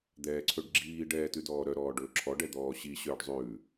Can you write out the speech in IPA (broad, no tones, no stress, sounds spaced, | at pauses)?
d̪ ɛː ǀʰ ɵ ɖ ɡ͡ǁ iː ɖ ɛː t ʉ d ɔː ɾ œ ɾ ɔː ɖ ɵː ǁʰ ɔ ɖ ɛ d̪ ɔː ɕ i ɕ œː ɖ zˤ ʉː